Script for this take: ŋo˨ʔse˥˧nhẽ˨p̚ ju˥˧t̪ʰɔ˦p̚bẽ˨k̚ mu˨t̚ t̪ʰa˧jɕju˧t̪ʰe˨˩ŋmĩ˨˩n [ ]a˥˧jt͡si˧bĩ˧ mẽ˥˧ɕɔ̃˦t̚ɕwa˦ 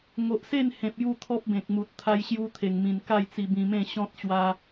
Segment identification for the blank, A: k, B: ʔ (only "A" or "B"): A